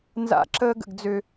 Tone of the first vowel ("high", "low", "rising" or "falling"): high